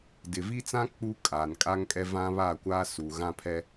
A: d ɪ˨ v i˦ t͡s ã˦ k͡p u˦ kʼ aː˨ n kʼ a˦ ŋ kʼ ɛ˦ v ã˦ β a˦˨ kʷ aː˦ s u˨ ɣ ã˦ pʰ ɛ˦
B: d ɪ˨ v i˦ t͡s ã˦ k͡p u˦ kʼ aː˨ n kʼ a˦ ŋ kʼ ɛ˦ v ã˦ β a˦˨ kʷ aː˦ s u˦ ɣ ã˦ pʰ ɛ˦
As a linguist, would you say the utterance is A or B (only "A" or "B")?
A